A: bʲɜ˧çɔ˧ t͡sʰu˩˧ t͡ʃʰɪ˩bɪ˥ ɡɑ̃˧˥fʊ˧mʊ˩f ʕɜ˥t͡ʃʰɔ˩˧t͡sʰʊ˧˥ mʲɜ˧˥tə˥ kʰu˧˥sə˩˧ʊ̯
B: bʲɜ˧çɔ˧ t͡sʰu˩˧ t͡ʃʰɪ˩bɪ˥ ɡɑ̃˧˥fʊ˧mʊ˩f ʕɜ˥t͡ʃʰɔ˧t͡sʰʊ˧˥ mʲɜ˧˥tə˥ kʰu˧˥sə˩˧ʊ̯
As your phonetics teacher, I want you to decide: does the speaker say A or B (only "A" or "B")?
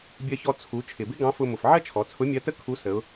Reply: A